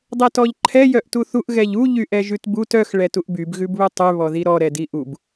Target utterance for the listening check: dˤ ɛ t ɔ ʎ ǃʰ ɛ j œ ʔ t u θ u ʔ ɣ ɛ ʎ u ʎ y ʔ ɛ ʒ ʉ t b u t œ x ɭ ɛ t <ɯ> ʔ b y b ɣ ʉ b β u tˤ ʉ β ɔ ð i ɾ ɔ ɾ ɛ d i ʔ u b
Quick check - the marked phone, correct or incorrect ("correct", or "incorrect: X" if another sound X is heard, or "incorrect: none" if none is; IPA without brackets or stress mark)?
incorrect: u